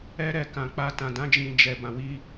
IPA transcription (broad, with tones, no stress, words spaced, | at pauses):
ɛ˦ɾɛ˧kã˨ k͡pa˧tã˨dã˨˦ d͡ʒĩ˧d͡ʒɛ˨ bã˨wi˧